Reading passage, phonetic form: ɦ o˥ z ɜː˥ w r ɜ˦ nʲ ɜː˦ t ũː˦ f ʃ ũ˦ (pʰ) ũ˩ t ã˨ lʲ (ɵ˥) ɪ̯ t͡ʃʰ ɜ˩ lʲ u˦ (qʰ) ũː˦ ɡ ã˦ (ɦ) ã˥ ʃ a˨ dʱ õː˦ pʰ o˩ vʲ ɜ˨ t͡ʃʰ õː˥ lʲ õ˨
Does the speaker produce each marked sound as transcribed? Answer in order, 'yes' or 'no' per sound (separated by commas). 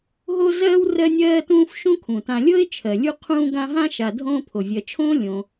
no, no, yes, yes